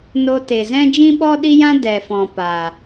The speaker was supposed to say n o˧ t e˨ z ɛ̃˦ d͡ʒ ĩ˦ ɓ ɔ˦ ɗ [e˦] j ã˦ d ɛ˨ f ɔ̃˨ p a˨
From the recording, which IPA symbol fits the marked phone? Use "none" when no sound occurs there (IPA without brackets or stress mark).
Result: i˦